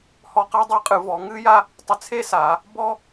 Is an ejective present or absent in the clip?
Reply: present